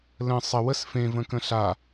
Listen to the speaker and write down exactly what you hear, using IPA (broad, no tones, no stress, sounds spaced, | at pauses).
l ə̃ sˤ ə w ə s f ẽ v ə̃ k ə̃ ɬ a